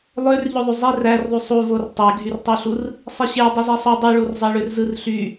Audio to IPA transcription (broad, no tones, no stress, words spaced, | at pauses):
lˠør ʎøðˤyzˤir ærðˤy sˤuvor tˤeɡʱyrtˤyɬur | sˤiɕe dˤuzesˤo dˤyɭurzˤɑ ɭørzɯrɬy